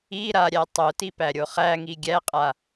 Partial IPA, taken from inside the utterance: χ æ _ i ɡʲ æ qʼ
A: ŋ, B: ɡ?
A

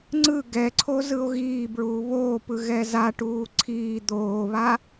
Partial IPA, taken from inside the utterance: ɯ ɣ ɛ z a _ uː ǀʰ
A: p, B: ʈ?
B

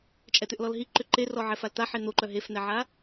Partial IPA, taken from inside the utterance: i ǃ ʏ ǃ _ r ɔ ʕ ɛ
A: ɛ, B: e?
B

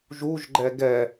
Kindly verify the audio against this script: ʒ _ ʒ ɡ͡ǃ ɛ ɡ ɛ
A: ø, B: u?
B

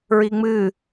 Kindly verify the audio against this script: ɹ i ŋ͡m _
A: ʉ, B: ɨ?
B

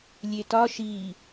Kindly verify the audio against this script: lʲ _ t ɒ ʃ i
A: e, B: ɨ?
A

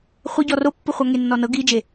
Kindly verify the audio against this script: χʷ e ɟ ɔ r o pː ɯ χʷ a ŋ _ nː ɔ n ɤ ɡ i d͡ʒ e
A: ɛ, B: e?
B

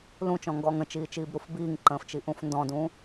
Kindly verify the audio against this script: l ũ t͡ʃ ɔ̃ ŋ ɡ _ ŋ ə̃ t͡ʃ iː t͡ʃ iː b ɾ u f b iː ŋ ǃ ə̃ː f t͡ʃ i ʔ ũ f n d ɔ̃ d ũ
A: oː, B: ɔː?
B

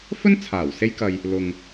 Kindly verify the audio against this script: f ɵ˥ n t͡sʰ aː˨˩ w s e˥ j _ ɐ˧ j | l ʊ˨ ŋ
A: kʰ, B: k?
B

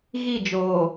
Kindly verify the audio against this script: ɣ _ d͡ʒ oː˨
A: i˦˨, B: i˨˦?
A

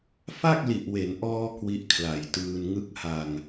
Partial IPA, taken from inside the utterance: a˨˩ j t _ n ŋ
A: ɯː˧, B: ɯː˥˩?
A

